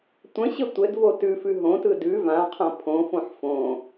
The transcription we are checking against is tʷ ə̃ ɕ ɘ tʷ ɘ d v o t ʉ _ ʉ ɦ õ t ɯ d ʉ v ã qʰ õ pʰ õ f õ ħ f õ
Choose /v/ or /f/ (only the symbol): f